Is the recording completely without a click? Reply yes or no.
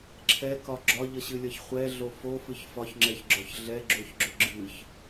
no